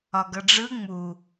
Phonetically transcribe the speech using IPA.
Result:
ɒ ɡ ʌ ɖ͡ʐ ɯ ŋ͡m u

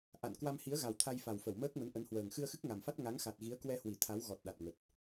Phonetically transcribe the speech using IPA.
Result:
ʔ a̰˧˨ n k w a˧ m h i˨˦ ə̯ ɣ a˨˩ w t̪ʰ a˧ j f a˨˩ w f ə˧˩ w m əː˦˥ k̚ m ə˨˦ n ʔ ə˨˦ n h w əː˨˩ ŋ x ɨ˧ ə̯ x ɨ˦˥ k̚ ŋ a˨˩ m f a˦˥ t̚ ŋ a˨˦ ŋ x a˨˩ t̚ ɣ i˨˦ ə̯ k w ɛ˧ h w i˧˩ t̪ʰ a˨˦ w ɣ ɔ˨˩ t̚ ɗ a˨˩ t̚ ŋ ə˨˩ t̚

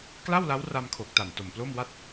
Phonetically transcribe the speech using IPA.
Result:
k l a˥˩ w l a˦˥ w r a˧ m kʰ o˨˩ k̚ t a˨˩ n t o˨˩ m p l o˥˩ m w a˥˩ t̚

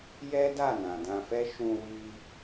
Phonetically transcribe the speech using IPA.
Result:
j ɛ˦ d a˦˨ n ã˨ d ã˧ f ɛ˦ ʃ ũ˧ w i˧

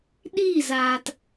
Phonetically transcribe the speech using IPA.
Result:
ɗ i˦˨ z aː˨ t

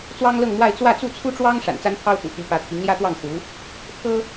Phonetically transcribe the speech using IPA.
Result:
t͡s w ɑ˥ ŋ l ɤ˥˧ ŋ m w a˥˧ ɪ̯ t͡s w ä˥˧ t͡s u˥˩ t͡sʰ u˥ ʈ͡ʂ w ɑ˥ ŋ ʂ a̰˨˩ n t͡s a˥ n pʰ ɑ˥ ʊ̯ t̪ ṵ˨˩ t̪ y˧˥ p ä˧˥ t̪ʰ i˧˥ ŋ l j ä˥ t̪ w ɑ˥˩ ŋ x u˧˥ | pʰ ɤ˥

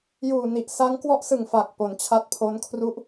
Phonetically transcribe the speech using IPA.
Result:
j uː˨˩ n i˨˩ ʔ s a˦˥ ŋ k w ɔ˦˥ ʔ s ɯ˨˩ ŋ f a˨˩ k̚ p o˩˦ n t͡ɕʰ a˦˥ t̚ pʰ o˦˥ n kʰ r u˥˩ ʔ

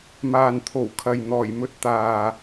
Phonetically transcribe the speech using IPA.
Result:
m aː˨ n t̪ʰ o˨˩ w kʰ ɐ˨ j n̪ ɔː˨˩ j m ɵ˧ t̚ t̪ aː˨

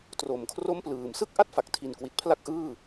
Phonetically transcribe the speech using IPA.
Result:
t r o˨˩ m kʰ r o˥˩ m p l ɯː˨˩ m s ɯ˥˩ k̚ ʔ a˥˩ t̚ f a˨˩ k̚ tʰ i˨˩ n k w i˨˩ t̚ pʰ l a˥˩ k̚ ʔ ɯː˥˩

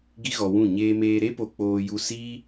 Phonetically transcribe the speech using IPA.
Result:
ɡ i˦ ɣ ɔ˧ w ũ˦˨ ɲ eː˧ m eː˧ ɾ e˦ p o˧ k͡p oː˧ j u˧ s i˦

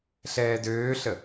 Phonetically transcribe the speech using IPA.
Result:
ɬ ɛː d øː ɬ ə

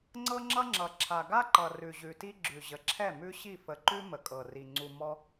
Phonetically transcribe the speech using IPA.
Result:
ŋ͡ǀ ɤ˦ ŋ͡ǁ ʌ˦ ŋ͡ǁ ʌ˨ ǁʰ a˨ ɡ a˦ ǃ ʌ˨ r ʉ˨ ʑ ʉ˨ t i˦ ɡ͡ǁ ʉ˨ ʑ ə˨ ǁʰ ɛ˦˨ m ʉ˦ ɕ i˦˨ f ə˨ ǃ ʉ˦ m ə˨ kʼ ɤ˨ r i˨ ŋ͡ǀ u˨ m ɔ˦

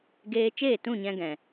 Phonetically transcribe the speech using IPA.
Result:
ɡ eː˧ t͡ʃ eː˦˨ t ũ˦˨ ɲ ɛ̃˧ ɡ ɛ̃˨

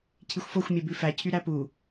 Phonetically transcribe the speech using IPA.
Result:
cʰ i xʷ f o xʷ mʲ ɛ b ʉ f æ cʰ y ɾ æ p u

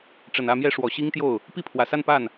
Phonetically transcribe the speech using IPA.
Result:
ʈ͡ʂ ə˨˩ n ä˥˧ m j ɛ˥˩ ʂ w ɔ˨˩ ɕ i˥ ŋ t̪ j o˥˩ ʊ̯ | p i˥˩ pʰ w ä˨˩ s a˥˧ n p a˥˩ n

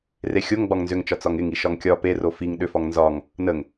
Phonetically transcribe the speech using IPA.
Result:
r e xʲ o ŋ ɡ͡b ɒ ŋ n z ʏ ŋ t͡ʃ ɒ t͡s ɒ ŋ ɪ ŋ i ʃ ɒ ŋ kʲ ɒ p e r o f i ŋ ɗ ʏ f ɒ ŋ n z ɒ ŋ | n ə ŋ

